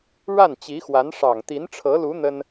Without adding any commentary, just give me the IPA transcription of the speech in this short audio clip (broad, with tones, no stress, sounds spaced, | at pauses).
ɻ a˥˩ n t͡ɕ i˧˥ x w a˧˥ n ʂ ɑ˨˩ ŋ t̪ i˧˥ n ʈ͡ʂʰ ɤ˧˥ l u˧˥ n̪ ə˥ n